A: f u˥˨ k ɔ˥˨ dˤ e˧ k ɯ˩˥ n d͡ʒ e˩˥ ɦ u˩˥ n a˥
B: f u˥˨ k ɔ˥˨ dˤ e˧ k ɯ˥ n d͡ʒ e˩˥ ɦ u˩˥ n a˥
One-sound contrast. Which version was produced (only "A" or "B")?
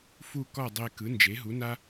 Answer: A